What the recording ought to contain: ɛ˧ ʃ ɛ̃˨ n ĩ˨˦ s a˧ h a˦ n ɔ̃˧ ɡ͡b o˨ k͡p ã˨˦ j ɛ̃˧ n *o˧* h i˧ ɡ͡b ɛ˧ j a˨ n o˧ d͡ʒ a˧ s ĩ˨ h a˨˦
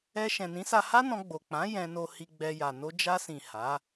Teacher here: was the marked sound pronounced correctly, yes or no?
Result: yes